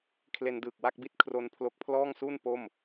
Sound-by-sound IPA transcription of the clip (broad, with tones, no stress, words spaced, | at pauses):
kʰle˧ndɯː˨˩k̚ wa˥˩k̚bi˥˩t̚ kʰro˧n pʰlo˦˥k̚pʰlɔː˥˩ŋsu˥˩n po˥˩m